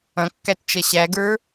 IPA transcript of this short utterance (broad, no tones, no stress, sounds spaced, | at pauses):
ɐ̃ kː æ t t͡ʃ ɐ ɕ æ ɡ ə˞